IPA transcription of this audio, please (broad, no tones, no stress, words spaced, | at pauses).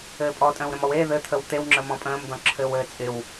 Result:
ɘːpʼɔtʼə̃ːw ɾə̃mɔweː ðɘt̪ʰəw t̪ewŋ͡ǁəmɔ̃ pʼə̃ːmdɔ̃ǁʰɘːw ɘːt͡sʼɪw